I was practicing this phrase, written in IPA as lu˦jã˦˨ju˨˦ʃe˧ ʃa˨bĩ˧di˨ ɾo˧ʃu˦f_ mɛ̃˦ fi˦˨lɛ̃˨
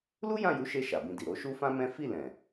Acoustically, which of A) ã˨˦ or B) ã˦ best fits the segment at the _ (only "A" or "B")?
B